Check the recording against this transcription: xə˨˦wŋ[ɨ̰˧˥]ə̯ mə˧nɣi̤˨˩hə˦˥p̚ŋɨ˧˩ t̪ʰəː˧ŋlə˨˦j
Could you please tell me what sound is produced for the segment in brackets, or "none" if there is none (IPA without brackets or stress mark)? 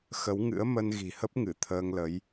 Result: ɨ̰˧˥